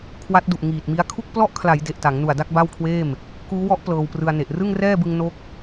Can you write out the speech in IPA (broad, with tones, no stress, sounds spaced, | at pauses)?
kʰ w a˦˥ t̚ d u˨˩ ʔ ŋ iː˨˩ t̚ m i˦˥ a̯ kʰ u˥˩ k̚ p l ɔ˥˩ ʔ kʰ l a˩˦ j d e˨˩ ʔ t a˩˦ ŋ n u˨˩ a̯ d a˥˩ k̚ b a˥˩ w kʰ w eː˥˩ m | k uː˦˥ w ɔ˦˥ ʔ p l ɤː˧ w p r ɯ˧ a̯ n e˨˩ ʔ r ɯ˥˩ ŋ r ɛː˥˩ b ɯ˧ ŋ n o˦˥ k̚